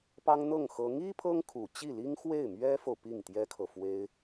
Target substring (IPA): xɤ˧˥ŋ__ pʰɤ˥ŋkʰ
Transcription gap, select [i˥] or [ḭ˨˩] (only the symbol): i˥